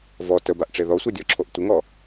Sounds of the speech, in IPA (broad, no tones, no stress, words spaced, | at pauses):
vɔ təbaʔʈ͡ʂe ðɔsʷɛdʲɔǁʰoʔ tʷɪŋɔ